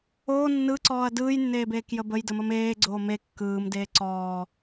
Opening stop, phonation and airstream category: click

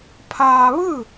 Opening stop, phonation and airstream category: aspirated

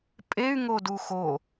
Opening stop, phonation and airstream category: ejective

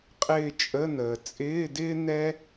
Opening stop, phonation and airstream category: ejective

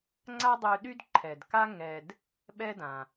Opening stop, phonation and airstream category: click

